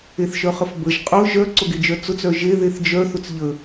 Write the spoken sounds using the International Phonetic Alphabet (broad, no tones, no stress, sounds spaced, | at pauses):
e θ ʃ œ χ ə f b ə ʒ qʼ ʊ ʒ œ ǀ ʊ ɡ e d͡ʒ œ t͡s ʊ t͡s œ ʒ e ð e θ d͡ʒ œ θ ʊ t͡s ʎ ə